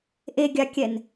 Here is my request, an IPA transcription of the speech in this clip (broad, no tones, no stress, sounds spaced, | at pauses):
ʔ e ɡʲ a kʲ ɛ n